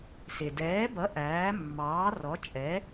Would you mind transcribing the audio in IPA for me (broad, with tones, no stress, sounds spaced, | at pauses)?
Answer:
s ɪ˩ d ɛː˩˥ b ʌ˩˥ ʔ æː˩˥ mː ɑː˩˥ r ɔ˩˥ t͡ʃʼ ɛ˩˥